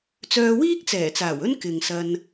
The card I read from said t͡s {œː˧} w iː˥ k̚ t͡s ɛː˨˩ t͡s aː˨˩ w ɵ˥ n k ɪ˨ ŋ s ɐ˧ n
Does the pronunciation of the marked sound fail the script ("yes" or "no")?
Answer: no